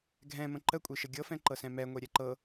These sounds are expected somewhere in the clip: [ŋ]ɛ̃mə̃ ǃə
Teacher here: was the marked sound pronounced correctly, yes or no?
no